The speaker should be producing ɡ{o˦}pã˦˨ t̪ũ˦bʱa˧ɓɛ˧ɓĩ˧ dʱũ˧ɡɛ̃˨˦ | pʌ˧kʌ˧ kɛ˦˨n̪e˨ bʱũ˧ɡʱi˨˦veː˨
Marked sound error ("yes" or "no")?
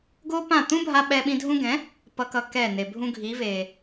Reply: no